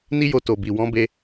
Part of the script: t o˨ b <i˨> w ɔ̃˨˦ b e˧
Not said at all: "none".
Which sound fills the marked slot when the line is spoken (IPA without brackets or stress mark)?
i˨